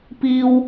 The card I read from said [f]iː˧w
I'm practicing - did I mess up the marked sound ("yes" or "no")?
yes